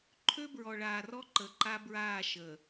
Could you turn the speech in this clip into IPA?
ǃʰ ø˦ b ɹ ɔ˨ ɭ aː˨ r ɔ˦ ǃ ə˨ ǃ a˦ b ɹ aː˦˨ ʃ əː˨

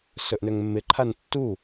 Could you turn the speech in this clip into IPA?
s ɵ ʔ n ø ŋ mː ɪ ǃʰ a n tː u

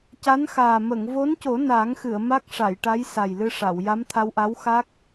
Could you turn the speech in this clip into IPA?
c a˧˥ n x aː˨˩ m ə˨˩˨ ŋ v o˧˥ n c o˨˩˦ n a˨˩˦ ŋ x ɨ˨˩˨ ə̯ m a˦˥ k̚ ʂ a˨˩˨ j ʈ a˧˥ j s a˨˩ j l ɨ˧ ʂ a˨˩˨ w j a˧˥ m t̪ʰ a˧ w ʔ a˧˥ w x a˦˥ k̚

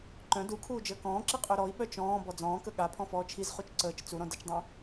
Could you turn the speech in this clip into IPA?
ǃ œ̃ d u kʰ uː d͡ʒ əː k ɔ̃ː ǁ i qʼ œ ɾ ɔ i̯ ɓ œ t͡ʃ ɔ̃ː b ɔ d͡z ɔ̃ː k ə ɠ a pʰ ɔ̃ f ɔː t͡ʃʰ i z χ u t͡ʃ ǀ əː t͡ʃ t͡s u ɾ ɔ̃ d ə t͡ʃ dˤ œ̃

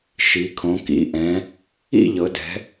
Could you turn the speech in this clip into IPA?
ʃ i˩˧ kʰ õ˩˧ k ḭ˩˧ ʔ ɛ̃˩˧ | ḭ˥˨ ʎ ɤ˩˧ d ɛ̤˩˧

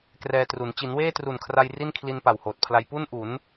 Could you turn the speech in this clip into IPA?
k r ɛː˧ t r u˩˦ n t͡ɕ i˩˦ n w eː˥˩ t r u˨˩ n kʰ r a˧ j r i˥˩ n kʰ l i˧ n p a˨˩ w h oː˨˩ t̚ pʰ l a˧ j p u˥˩ n ʔ u˩˦ n

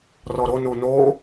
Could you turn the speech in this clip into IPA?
r ɔ ɾ o n u n o

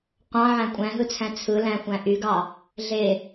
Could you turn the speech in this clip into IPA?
qʷ ɑ̃ ʕ æ̃ kʷʼ æ̃ ɦ ɯ t͡sʰ æ̃ t͡sʰ ɯ l æ̃ xʷ æ̃ ʔ y ɡ ɑ | ɮ e

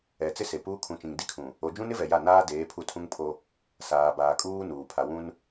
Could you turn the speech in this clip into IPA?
ɛ˨ t͡s ɪ˦ s e˨ p uː˦ kʰ ũ˨ t͡ʃ ĩ˨ ŋ d i˦ kʰ ũ˨ | o˨ d͡ʒ ũ˦ n ɪ˦ v ɛ˨ j a˦˨ n aː˦ d eː˨˦ pʰ u˦˨ tʰ ũ˦ ŋ pʰ o˦ | s aː˨ b aː˨ kʼ uː˦ n uː˨ pʰ a˨ w ũ˦ n

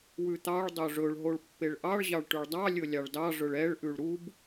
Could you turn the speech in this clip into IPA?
w ʉ t̪ ɑ ɭ dˤ o ʐ ɵ ɭ ɦ o ɭ pː e ɭ ʔ ɑ ɭ ʑ ɑ ɭ ʈ ʉ ɭ dˤ ɑ lʲ ɵ lʲ ɑ ɭ d ɑ ʐ ɵ ɭ ɛ ɭ ʔ ʉ ɭ ɾ u b

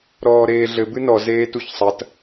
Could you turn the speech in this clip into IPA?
ɾ ɔː ɾ eː ɮ ɘ b ɨ n ɔ z eː t u ç sˤ ɐ t

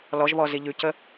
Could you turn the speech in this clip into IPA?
l ɔ ʒ β ɔ z i ʎ ʉ c ə

